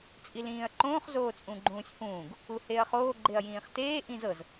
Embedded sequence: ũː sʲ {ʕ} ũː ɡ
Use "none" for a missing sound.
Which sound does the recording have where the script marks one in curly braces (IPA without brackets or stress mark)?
h